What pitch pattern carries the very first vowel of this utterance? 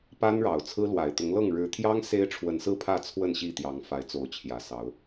high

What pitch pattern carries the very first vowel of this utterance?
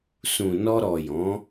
low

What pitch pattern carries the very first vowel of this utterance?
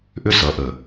falling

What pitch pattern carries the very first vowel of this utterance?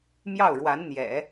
falling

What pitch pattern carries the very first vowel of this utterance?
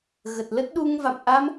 low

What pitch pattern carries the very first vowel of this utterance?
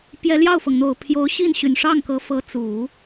rising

